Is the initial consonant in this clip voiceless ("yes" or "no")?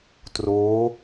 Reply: yes